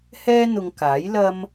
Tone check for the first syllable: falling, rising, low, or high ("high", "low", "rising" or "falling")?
high